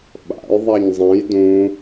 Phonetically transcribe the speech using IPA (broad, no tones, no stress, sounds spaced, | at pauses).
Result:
ɓ a̰ j ðˤ a ɲ zˤ ẽ j d ũ